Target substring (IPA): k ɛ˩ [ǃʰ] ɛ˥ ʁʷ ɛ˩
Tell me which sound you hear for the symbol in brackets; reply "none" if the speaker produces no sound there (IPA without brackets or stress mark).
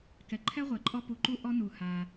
ǃʰ